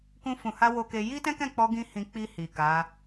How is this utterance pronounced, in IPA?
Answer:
kũ˧fũ˨ha˧ wo˧ke˧ ji˦tɛ̃˦kɛ̃˦˨k͡pɔ˧ ɡĩ˦hĩ˧ k͡pi˧ hi˨ka˨˦

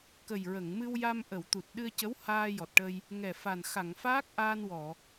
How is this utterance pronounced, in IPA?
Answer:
kə˨˩jɹə˨˩˨ŋ mɨ˧wja˧mʔə˨˩˨w t̪u˨˩t̚ɗɨ˧ə̯cə˧˥w haː˧jɔ˨˩t̚ʈə˧j | ŋɛ˨˩ fa˨˩n xa˨˩˨ŋfaː˦˥k̚ ʔaː˧nwɔ˨˩˨

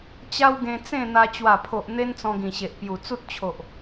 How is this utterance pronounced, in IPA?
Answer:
t͡ɕa˦wɡẽ˧ t͡sẽ˥˧n̪a˧ t͡ɕwa˨˩pʰo˨ʔ n̪e˦nt͡sɔ̃˧ɡĩ˨˩ɕe˨ʔ pju˨˩t͡su˦t̚t͡ɕʰo˨ʔ

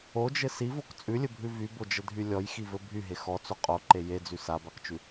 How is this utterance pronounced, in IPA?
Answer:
od͡ʒɘ sivok t͡sʼʉlʲɘbʱʉ vybod͡ʒədʱy lʲɔjxivɘ bʱyɦe xɔt͡so qʼoǃe jed͡zy sabakt͡ʃʉ

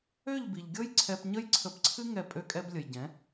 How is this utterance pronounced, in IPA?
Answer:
ø˦˨ʎbi˨ʎɡʲɤ˦j ǀʰɛ˧pɲə˦jǀʰə˧pǀʰɨ˦ ŋɛ˦˨pʼø˦kʼɛ˦b lʲə˨jɟɛ̃˨˦

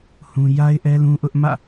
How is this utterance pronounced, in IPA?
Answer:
hũ˦ ja˦ɪ̯ʔɛ˦lũ˦ʔʊ˦ʔ mä̰˦˨

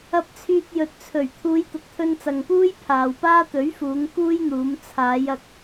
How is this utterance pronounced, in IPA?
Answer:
ɐ˧p̚t͡sʰyː˧t̚jɵ˨t̚t͡sʰɵ˨˩ɥ t̪ʰuː˨˧jt̪ʊ˨k̚t̪ʰɵ˧n t͡sɐ˨ŋpuː˥j pʰaː˨wpaː˥ t̪ɵ˨˥ɥfuː˨˧ŋ kuː˥jn̪uː˨˧m t͡sʰaː˨˧jɐ˧k̚

